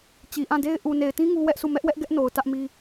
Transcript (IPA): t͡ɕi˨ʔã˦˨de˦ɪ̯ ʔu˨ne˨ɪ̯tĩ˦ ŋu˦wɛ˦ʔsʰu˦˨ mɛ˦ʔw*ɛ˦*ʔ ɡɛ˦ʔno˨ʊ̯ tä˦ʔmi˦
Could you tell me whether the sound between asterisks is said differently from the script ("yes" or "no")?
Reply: no